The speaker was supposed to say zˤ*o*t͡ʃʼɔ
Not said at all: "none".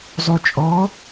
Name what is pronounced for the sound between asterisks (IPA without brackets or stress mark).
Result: u